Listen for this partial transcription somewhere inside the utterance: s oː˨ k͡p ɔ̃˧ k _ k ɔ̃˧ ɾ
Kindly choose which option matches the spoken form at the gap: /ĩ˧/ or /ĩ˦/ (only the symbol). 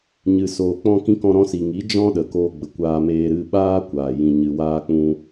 ĩ˧